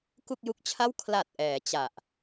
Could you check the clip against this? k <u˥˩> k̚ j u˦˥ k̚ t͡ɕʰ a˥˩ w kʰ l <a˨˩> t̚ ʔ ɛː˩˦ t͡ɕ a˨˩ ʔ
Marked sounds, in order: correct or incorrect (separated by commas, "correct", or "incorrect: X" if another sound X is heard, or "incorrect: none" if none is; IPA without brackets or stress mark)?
correct, correct